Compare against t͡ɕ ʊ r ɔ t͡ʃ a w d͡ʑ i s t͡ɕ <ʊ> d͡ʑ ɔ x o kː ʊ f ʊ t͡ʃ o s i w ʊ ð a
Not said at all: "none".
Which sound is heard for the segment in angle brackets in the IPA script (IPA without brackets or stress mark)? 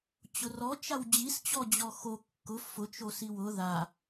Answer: ɔ